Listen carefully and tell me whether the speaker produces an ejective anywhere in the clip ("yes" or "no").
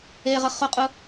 yes